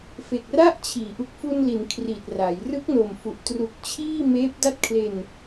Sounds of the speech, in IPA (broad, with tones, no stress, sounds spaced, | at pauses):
f e˨˩ k̚ r a˥˩ ʔ t͡ɕʰ iː˩˦ ʔ u˨˩ k̚ f u˧ n l i˩˦ n kʰ r i˨˩ t̚ r a˩˦ j r ɯ˦˥ k̚ n o˨˩ m f u˨˩ ʔ t r u˨˩ k̚ t͡ɕʰ iː˥˩ m eː˦˥ p̚ d a˥˩ t̚ kʰ l e˧ n